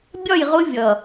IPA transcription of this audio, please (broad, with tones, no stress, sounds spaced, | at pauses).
bʲ ɒ˦˨ j ʁ ʊ˦ vʲ ʌ˨